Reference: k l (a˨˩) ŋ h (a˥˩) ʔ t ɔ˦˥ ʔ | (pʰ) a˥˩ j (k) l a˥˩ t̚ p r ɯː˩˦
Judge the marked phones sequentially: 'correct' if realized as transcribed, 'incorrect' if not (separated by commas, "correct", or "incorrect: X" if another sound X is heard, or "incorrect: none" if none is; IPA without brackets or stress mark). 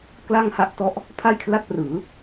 incorrect: a˥˩, correct, correct, incorrect: kʰ